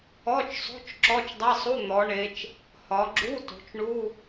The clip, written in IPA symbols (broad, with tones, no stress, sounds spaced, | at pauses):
ɔ˧˥˧ t͡ʃ sˤ o̤˧˥˧ t͡ʃ ǁ ɔ˧˥˧ t͡ʃ dˤ ɛ˧˥˧ sˤ u˧˥˧ n̪ ɔ˩˧ ɳ e˩˧ t͡ʃ | h ɒ˩˧ ɡ͡ǁ u˧˥˧ t o̤˩˧ t͡ʃ ɳ u˧˥˧